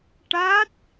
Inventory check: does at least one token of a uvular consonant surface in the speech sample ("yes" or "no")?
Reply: no